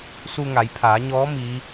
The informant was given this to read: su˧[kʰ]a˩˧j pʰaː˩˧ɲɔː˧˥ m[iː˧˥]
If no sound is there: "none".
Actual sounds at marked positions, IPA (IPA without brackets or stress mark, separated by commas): ŋ, iː˧˥